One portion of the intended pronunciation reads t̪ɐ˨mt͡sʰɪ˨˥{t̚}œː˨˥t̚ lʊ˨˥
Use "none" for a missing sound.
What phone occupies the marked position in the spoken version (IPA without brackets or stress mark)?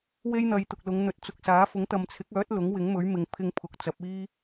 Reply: k̚